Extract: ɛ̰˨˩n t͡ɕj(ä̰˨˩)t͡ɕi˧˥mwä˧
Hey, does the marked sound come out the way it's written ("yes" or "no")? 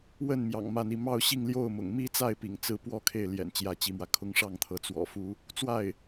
no